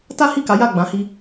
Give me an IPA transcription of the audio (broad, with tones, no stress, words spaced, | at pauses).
ta˦hi˦˨ka˨˦ ja˦˨ɡ͡bã˨˦hi˧